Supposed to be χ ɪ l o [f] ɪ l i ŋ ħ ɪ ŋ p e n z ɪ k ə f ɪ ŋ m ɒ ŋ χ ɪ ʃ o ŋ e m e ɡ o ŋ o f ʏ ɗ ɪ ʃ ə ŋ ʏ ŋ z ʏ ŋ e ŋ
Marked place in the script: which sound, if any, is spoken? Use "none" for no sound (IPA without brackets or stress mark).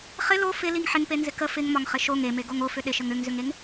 f